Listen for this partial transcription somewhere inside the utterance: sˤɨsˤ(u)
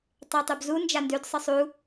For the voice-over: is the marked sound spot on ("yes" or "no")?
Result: yes